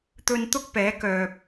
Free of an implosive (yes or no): yes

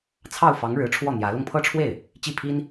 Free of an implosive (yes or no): yes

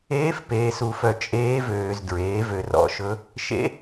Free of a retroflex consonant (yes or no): yes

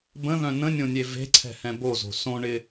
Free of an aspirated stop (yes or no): no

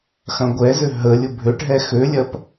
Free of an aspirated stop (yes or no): yes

